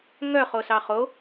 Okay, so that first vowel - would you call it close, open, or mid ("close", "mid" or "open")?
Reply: mid